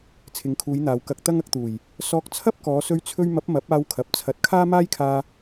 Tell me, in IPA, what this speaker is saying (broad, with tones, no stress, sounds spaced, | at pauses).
t͡sʰ ɪ˨˧ ŋ kʰ uː˨˧ j n̪ aː˨ w k ɐ˧ k̚ t̪ ɐ˥ ŋ ɐ˧ k̚ t̪ uː˨˩ j | s ɔː˧ k̚ t͡sʰ ɐ˥ p̚ k ɔː˨˧ s ɵ˥ ɥ t͡sʰ ɵ˥ ɥ m ɐ˨˥ p̚ m ɐ˨˥ p̚ aː˧ w kʰ ɐ˨ p̚ t͡sʰ ɐ˨˥ t̚ kʰ aː˥ m aː˥ j kʰ aː˧